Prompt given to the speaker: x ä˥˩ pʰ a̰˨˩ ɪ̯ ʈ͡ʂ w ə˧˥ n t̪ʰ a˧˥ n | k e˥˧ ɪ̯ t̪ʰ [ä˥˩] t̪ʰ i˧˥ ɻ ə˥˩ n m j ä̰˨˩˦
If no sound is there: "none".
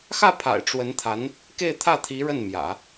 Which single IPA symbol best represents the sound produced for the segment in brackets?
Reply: ä˥˩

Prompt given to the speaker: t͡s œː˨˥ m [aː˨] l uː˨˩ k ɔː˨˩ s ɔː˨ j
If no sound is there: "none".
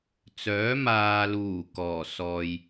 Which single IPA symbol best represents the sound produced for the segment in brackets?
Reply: aː˨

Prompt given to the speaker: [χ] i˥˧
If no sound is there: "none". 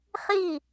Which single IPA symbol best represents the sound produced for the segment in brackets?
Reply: χ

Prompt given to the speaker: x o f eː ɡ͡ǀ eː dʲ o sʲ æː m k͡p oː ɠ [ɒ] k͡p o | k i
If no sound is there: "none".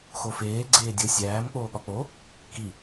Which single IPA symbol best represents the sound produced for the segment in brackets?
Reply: ɒ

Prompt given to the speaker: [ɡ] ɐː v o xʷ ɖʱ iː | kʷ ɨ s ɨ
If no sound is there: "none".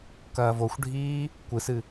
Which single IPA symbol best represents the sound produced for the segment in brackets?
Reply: k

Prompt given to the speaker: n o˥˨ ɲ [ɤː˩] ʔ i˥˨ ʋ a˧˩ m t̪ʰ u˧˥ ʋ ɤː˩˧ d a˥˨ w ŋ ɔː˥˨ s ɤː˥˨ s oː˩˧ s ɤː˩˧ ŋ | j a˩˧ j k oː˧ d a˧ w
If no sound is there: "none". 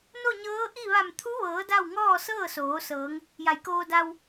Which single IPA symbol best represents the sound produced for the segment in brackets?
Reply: ɤː˧˥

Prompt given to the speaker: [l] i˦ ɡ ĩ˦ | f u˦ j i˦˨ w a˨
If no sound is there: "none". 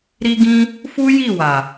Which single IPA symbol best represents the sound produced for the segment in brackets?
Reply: ɾ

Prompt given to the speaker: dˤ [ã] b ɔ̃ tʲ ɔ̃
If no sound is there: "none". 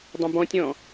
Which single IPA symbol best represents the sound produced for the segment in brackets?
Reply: ə̃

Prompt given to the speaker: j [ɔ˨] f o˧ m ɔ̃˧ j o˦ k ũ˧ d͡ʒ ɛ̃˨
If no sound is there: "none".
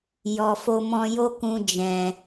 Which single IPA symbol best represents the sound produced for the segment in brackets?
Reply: ɔ˨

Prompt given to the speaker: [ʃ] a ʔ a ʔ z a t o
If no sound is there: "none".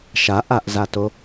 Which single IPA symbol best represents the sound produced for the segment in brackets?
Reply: ʃ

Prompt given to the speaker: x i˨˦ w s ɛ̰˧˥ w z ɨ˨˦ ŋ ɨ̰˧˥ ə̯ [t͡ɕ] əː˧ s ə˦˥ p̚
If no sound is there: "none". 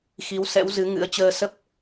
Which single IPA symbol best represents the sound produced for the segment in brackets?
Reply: t͡ɕ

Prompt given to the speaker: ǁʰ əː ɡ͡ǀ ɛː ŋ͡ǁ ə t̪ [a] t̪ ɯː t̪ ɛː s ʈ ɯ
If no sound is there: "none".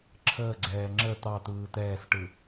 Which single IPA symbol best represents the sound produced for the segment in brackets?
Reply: ɑ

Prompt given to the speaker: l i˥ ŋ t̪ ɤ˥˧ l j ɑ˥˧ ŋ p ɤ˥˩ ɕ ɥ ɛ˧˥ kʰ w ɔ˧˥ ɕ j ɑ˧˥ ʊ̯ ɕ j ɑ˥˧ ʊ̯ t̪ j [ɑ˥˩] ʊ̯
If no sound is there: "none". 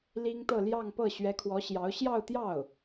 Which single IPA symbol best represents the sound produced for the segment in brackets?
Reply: ɑ˥˩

